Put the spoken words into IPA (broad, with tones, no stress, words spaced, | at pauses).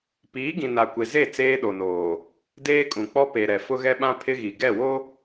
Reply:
piː˨˦ɡĩ˨na˨ kʷe˨ze˦˨ t͡seː˦ɗo˨noː˨ | deː˦kʼũ˨ k͡pɔ˦pe˨ɾɛ˨ fʊ˦ɣɛ˦ɓã˦ pʰɪ˦ɣi˨ ɡɛ˦˨wo˦